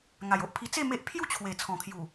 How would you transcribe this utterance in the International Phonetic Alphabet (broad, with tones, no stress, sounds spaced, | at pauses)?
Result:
ŋ a˨˩ j o˦ ʔ pʰ i˧ t͡s e˥˧ m e˦ ʔ pʰ j u˥˧ t͡ɕʰ w e˨˩ t͡sʰ ɔ̃˨˩ kʰ j u˨˩